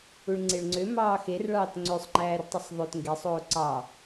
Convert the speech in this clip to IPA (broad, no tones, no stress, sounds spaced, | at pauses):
u ɭ ŋ͡ǀ e ɭ ŋ͡ǀ ø m ɑː x e r ɭ ɑː t ŋ͡ǀ ø sˤ ŋ͡ǃ æː r tˤ ɯ sˤ ðˤ ø t ŋ ɡ e sˤ oː ǀ ɑ